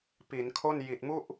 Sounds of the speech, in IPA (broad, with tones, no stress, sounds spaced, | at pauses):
p i˩˦ n kʰ o˥˩ n j i˨˩ t̚ m u˥˩ ʔ